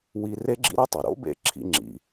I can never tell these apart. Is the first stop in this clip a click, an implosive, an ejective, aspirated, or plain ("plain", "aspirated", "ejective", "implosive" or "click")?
click